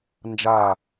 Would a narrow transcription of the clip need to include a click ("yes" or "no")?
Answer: no